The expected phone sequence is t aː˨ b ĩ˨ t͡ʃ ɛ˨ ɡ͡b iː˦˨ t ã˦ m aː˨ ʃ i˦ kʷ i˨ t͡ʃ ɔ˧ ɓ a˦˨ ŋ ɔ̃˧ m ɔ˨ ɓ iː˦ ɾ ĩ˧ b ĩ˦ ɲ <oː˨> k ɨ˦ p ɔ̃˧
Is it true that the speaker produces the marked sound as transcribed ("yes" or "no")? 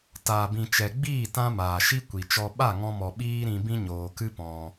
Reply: yes